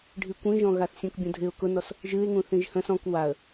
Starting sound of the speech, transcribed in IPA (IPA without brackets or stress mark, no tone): ɖʱ